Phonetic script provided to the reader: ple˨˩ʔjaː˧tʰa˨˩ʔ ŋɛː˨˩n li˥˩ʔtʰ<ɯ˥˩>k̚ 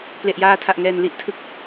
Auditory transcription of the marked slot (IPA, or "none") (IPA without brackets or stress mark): ɯ˥˩